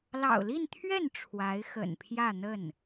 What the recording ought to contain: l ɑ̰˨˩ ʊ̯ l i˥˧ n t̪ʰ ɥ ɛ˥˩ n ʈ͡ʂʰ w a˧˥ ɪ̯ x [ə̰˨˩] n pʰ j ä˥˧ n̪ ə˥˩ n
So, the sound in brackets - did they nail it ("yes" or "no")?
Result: yes